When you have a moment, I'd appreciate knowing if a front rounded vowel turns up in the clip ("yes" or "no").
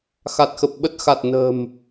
no